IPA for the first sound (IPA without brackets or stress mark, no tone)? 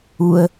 u